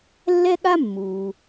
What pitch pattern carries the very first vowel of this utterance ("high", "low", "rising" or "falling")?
high